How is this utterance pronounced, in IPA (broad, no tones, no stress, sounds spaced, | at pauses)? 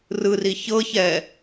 r ɯ r i ç ɤ ç ɛː